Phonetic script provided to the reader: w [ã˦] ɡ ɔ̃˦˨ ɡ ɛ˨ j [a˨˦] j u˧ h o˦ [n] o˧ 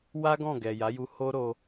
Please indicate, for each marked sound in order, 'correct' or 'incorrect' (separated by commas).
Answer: incorrect, correct, incorrect